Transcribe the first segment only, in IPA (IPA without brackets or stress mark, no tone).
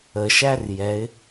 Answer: ə